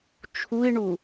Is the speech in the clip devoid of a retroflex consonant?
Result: no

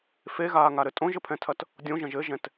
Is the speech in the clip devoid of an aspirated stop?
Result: no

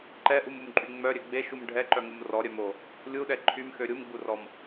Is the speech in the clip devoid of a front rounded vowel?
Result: no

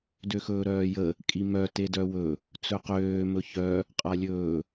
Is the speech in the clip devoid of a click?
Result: yes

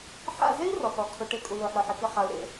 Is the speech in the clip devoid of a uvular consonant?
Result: no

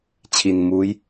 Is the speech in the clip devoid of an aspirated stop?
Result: no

